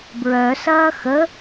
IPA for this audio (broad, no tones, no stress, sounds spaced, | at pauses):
b ɹ œ s ɐː x ə